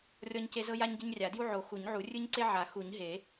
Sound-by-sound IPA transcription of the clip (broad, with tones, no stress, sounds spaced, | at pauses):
rʲ ɔ˦ ɲ c e˦ z ɤ˦ j a˦ ɲ ɟ e˦ ɲ rʲ a˨˩˦ d j u˦ ʕ o˨˩˦ x u˨˩˦ ɲ ʕ u˨˩˦ rʲ ɯ˦ ɲ ǀ e˦ ʕ a˨˩˦ x u˨˩˦ ɲ ɦ e˨˩˦